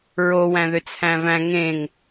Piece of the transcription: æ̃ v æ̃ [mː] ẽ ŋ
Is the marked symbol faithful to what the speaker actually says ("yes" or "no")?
no